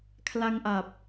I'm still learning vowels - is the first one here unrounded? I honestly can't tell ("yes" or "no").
yes